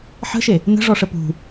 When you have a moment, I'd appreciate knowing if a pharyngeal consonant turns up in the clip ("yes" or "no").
yes